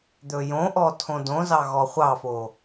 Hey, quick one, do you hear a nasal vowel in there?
yes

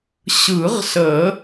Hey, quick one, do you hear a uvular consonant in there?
yes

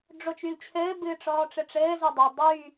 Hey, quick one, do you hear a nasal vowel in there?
no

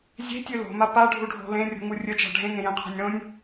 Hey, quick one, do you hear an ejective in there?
no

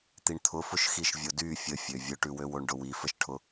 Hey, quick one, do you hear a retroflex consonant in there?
yes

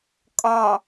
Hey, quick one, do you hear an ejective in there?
yes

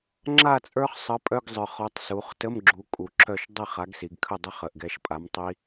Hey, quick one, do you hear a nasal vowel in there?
no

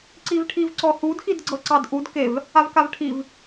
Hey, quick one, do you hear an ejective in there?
no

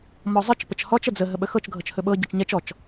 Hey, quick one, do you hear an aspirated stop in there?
no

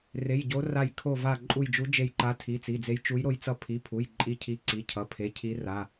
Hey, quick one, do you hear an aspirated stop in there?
yes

